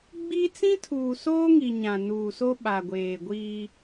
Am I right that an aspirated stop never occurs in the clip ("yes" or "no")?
no